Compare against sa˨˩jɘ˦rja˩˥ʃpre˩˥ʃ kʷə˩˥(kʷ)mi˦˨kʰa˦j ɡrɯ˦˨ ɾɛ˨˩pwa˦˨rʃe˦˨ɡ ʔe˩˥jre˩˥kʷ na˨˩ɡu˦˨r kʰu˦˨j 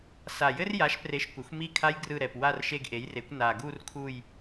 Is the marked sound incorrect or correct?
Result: incorrect